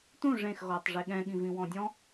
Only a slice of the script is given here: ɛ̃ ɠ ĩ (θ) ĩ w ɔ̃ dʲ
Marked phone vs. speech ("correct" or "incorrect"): incorrect